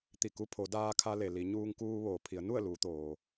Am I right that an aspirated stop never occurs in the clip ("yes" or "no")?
no